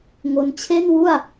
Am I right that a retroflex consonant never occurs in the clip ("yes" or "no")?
yes